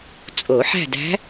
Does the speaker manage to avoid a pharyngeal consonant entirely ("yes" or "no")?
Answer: no